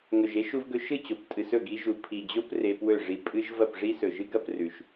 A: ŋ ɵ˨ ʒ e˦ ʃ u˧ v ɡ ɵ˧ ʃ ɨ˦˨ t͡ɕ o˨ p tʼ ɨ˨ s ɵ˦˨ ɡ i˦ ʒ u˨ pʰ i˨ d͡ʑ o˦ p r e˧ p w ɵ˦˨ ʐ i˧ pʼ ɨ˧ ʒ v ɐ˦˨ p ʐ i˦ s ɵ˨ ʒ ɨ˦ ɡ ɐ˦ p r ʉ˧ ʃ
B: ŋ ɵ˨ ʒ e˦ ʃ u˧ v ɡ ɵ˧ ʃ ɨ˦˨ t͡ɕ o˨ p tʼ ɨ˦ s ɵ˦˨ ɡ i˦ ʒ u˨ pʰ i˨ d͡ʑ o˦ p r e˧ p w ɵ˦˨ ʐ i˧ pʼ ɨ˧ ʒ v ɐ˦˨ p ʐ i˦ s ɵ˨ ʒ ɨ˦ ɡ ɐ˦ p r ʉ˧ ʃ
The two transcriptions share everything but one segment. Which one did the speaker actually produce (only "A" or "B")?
A